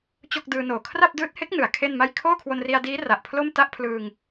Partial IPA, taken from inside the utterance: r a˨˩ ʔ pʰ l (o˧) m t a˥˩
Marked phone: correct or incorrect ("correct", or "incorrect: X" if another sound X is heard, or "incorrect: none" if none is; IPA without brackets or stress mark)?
incorrect: o˥˩